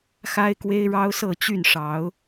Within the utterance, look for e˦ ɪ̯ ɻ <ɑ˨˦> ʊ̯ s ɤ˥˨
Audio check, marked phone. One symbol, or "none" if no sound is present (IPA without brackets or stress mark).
ɑ˦